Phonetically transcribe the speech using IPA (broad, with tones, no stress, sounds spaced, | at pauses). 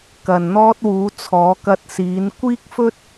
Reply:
k ɐ˨ n n̪ ɔː˧ t̚ w uː˨˧ t͡sʰ ɔː˨˧ k ɐ˧ t̚ s iː˨˧ n kʷ iː˥ k̚ f ɵ˥ t̚